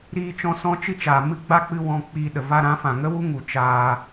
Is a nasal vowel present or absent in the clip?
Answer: present